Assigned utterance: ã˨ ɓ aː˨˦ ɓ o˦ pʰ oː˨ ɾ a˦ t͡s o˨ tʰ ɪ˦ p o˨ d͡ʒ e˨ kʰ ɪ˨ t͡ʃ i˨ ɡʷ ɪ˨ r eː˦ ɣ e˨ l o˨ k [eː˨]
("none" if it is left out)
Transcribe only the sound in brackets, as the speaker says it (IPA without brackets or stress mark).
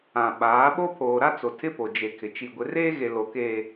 eː˨